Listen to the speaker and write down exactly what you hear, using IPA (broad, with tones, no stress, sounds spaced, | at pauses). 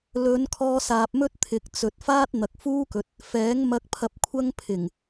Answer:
l ɵ˨˧ n kʰ ɔː˧ s aː˨ p̚ m ɵ˥ t̚ t̪ʰ ɪ˨ k̚ t͡s ɵ˨ t̚ f aː˥ t̚ n̪ ɐ˨ k̚ f uː˥ k ɵ˨˥ t̚ | f ɛː˨˥ ŋ m ɐ˧ k̚ pʰ ɐ˧ p̚ kʷʰ ɐ˥ ŋ pʰ ɪ˨˩ ŋ